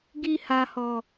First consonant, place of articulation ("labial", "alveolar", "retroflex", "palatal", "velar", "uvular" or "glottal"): velar